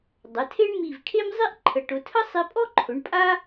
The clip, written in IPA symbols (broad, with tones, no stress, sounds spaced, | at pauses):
dˤ ə˩˧ tʰ e˥ ɳ m i˧˩ v kʰ e˥ m zˤ i˥ ʔ ǃʰ ə˩˧ ʈ ʊ˩˧ tʰ ə˥ sˤ i˧ pʼ ɔ˥ ǃʰ ʊ˩˧ ɳ pʼ a˥